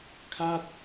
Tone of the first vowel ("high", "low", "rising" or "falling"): falling